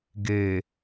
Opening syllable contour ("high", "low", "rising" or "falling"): low